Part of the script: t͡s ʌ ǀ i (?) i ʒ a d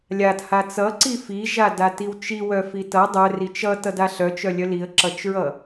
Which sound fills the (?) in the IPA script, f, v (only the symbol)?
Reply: f